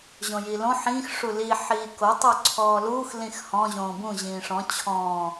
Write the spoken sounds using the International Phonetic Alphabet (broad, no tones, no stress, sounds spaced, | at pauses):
ʑ õ j iː l õ ħ ĩː x ʂ u l i ħ iː k o tˤ o ǀʰ ɔː l uː x l ĩ x h ɔ̃ ʑ õː b ũ ʑ ĩː ʂ ɔ̃ t͡ɕʰ ɔ̃